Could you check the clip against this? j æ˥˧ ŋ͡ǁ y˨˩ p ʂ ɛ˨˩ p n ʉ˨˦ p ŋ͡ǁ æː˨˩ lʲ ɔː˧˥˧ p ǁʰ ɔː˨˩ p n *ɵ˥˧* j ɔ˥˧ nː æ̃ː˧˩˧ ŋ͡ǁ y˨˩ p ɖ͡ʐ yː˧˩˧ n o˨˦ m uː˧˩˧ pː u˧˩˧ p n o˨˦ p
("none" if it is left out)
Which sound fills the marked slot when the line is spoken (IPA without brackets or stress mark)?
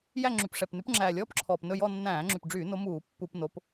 ɵ˥˧